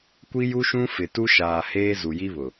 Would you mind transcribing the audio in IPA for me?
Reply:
kʷ i˦ j u˦ ʃ ũ˦ f ɪ˨ t u˦ ʃ aː˨ h eː˦ z u˨ j i˦ β ʊ˨

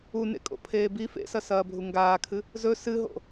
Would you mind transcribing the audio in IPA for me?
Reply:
u n ḛ kʼ o̰ pʰ eː b i f ḛ s ɐ s ɐː bʱ u ŋ ɡ aː kʰ ɨ | z ɵ s ɨ ɦ o̰

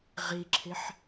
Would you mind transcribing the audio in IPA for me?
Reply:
ʁ i ǁʰ ɪ ħ

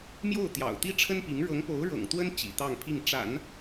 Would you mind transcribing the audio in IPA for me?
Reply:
m j o˥˩ ʊ̯ t̪ j ɑ̰˨˩ ʊ̯ t̪ i˥ ʈ͡ʂʰ ə˥ n p i˧˥ ŋ ɻ ɤ˧˥ ŋ p o˧˥ ʊ̯ ɻ ɤ̰˨˩ ŋ t̪ w ə˥ n t͡ɕ ḭ˨˩ t̪ ɑ˥˧ ŋ pʰ i˥˩ ŋ ʈ͡ʂ a̰˨˩˦ n

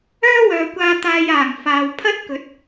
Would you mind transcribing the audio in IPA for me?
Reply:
œː˥ w œː˨ kʷ aː˧ t̪ aː˧ j aː˨˩ ŋ f aː˨ w pʰ ɐ˥ t̚ k ɵ˨˥ t̚

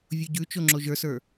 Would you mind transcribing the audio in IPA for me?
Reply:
vʲ u ɟ ʉ t͡ʃ o ŋ͡ǁ o ʒ ə˞ s ə˞

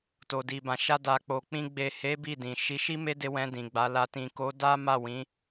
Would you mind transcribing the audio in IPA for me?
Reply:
t o˨ d i˨ b ã˨ ʃ a˧ d a˨ k͡p o˨ k͡p ĩ˧ ɡ͡b e˨ h e˨˦ b i˦˨ d ĩ˨ ʃ i˨˦ ʃ i˦ m e˦ d e˧ w ɛ̃˧ d ĩ˨ ɡ͡b a˨˦ l a˧ t ĩ˨ k o˨˦ d a˦ m a˦˨ w ĩ˨˦

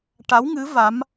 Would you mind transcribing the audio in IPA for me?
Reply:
ʈ a˧˥ w ŋ ɨ˧˥ v a˧˥ m

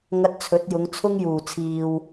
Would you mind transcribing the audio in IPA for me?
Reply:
ŋ ɐ˧ t̚ t͡sʰ ɵ˨˥ t̚ j ʊ˨˧ ŋ t͡sʰ ʊ˥ ŋ j uː˨˩ t͡sʰ iː˨ w

